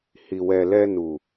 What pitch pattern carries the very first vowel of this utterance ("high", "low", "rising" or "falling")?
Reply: low